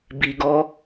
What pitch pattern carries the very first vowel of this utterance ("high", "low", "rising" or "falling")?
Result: low